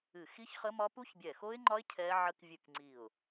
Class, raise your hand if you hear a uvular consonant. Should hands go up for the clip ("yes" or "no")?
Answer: yes